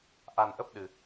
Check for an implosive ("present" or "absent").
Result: present